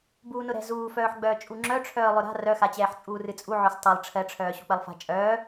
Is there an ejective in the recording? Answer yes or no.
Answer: yes